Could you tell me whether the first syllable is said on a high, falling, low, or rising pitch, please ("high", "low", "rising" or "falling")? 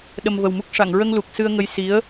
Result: low